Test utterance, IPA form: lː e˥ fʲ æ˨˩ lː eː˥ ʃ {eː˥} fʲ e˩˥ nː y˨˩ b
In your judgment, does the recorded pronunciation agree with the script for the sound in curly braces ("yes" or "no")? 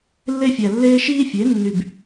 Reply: no